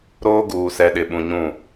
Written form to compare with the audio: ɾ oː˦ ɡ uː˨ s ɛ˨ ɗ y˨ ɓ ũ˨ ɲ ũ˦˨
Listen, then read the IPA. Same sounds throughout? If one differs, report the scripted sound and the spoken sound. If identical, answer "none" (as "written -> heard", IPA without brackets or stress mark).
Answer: y˨ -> ɪ˨